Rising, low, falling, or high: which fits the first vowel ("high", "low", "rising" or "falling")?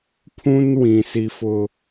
high